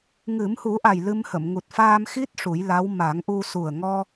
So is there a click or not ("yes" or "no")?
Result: no